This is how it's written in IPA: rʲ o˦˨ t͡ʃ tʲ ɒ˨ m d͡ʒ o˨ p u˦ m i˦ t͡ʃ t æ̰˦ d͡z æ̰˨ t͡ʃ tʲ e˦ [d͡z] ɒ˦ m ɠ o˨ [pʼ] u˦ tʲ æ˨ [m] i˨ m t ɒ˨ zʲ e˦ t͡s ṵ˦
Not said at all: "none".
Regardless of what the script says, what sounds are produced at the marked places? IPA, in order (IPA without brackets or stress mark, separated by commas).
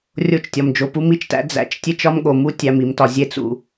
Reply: t͡ʃ, m, m